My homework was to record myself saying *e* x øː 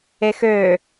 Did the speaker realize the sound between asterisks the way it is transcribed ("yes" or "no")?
yes